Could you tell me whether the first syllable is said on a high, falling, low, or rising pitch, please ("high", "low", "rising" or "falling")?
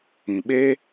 low